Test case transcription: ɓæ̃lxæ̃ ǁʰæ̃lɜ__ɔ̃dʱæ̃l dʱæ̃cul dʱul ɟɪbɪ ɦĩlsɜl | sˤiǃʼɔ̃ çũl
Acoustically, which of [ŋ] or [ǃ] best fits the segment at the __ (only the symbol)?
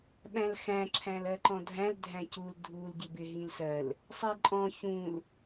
ǃ